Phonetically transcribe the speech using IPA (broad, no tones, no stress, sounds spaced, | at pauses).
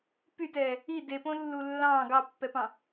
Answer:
p y t ɛː | i d e p õ lː u lː ɑ̃ː ɡ ɑ pː ɛ p ɑ̃